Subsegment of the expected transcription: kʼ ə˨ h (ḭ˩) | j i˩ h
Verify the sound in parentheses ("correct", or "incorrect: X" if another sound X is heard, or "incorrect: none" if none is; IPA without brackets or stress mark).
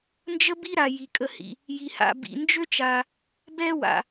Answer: correct